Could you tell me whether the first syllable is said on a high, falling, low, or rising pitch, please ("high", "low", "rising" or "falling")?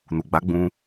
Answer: low